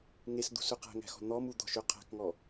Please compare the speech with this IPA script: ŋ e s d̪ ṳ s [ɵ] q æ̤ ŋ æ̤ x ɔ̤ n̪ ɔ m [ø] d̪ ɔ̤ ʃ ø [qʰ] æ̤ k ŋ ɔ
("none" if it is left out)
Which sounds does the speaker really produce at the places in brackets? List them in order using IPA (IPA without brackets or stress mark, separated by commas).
ɵ, u, qʰ